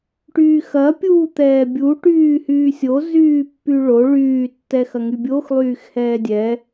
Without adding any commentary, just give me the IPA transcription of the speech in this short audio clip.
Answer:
ʈyːxɐ pʲuːt̪ɛːbʲu ʈyːhyːsʲo zyːpːyɭo ɭyː tːɛxɐŋybʲox lˠyːxhɛːdʲɛ

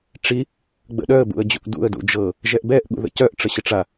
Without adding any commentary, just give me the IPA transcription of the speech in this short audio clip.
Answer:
ʈ͡ʂi | ɡ͡bə̰ɗœə̯ bṵə̯d͡ʑṵʔdṵə̯ dṵd͡ʒɤ | ʒɛʔbɛʔ ɠṵðə̰cœʔ ʈ͡ʂəɕəʈ͡ʂa

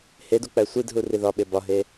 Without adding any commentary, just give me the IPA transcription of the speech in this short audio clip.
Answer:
hedu k͡pæsʷidɦu riðɒɓe bɒɦe

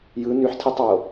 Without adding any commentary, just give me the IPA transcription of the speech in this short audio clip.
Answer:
jɯ nyħtʰitˤɑo̯

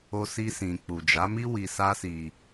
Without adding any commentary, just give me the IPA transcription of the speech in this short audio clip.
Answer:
o˧si˧sĩ˨ k͡pu˨d͡ʒa˨˦mi˦ wi˧sa˦si˧

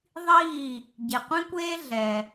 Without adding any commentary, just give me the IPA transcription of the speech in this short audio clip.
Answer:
ðˤiː˥˩ | ɟe˩qʷĩ˥kʷeː˥ ɮɛ˩

